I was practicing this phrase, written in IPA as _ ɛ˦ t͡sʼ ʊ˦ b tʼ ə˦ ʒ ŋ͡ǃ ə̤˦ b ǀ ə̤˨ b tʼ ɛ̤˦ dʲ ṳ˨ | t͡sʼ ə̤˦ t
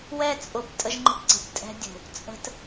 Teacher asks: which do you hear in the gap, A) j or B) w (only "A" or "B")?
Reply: B